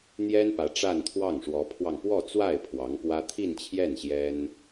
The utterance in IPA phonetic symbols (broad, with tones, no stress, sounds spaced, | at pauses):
n̪ j ɛ˥ n p ä˧˥ ʈ͡ʂ a˥˧ n t̪ʰ w ɑ˥˩ ŋ ʂ w ɔ˧˥ pʰ w ɑ˧ ŋ p w ɔ˥˧ t͡s w a˥˩ ɪ̯ pʰ w ɑ˧˥ ŋ p w ä˥ t̪ʰ i˥˧ n t͡ɕʰ j ɛ˥˩ n ɕ j ɛ˥ n